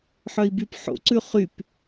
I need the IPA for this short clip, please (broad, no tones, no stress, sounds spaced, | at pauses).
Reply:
ħ œ i̯ b y p ħ o̰ ǀ ʉ χ y p